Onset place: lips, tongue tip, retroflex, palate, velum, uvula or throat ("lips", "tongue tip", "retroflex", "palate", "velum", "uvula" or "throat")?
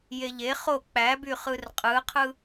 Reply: palate